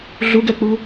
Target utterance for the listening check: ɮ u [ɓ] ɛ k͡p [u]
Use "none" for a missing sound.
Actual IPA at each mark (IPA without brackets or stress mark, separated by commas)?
ɡ, u